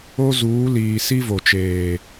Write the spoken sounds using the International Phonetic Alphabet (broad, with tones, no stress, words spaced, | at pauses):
o˦zuː˨˦liː˨si˦ vo˨t͡ʃeː˨